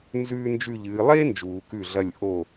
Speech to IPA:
n z ʉː˥ n d͡ʒ ʉ˥˧ ʎ ɨː˨˦ lˠ e˥ n d͡ʒ uː˨˩˦ k ʉ˥˩ ɮ ɐ˥˧ lʲ ʔ o˥˩

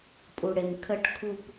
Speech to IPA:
pʼ u ɽ e m kʰ ə ʈ kʰ u p

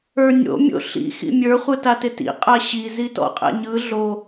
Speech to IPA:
ə˞ nʲ o̰ mʲ o̰ ɬ ḭ x ḭ mʲ ə˞ χʷ ɯ t a t ɪ t ḭ qʼ a ɕ i z i t ɔ̰ qʼ ɛ̰ ɲ ɯ ɮ o

